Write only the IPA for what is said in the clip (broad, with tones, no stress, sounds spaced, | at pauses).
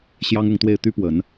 ɕ j ɑ˥ ŋ ʊ˥˧ ŋ t̪ w e˥˩ ɪ̯ t̪ y˥ p w ə˨˩˦ n